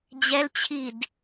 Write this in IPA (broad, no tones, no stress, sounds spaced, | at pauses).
d͡ʑ ɛ l t͡ɕʰ i d